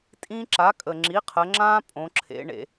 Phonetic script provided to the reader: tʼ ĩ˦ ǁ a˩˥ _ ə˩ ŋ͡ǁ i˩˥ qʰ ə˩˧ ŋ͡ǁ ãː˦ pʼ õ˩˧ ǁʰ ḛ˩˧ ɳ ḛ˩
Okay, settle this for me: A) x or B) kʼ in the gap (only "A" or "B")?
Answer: B